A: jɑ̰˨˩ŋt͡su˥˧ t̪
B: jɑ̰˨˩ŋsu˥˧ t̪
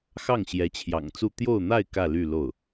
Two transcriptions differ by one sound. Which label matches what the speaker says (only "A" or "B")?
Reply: A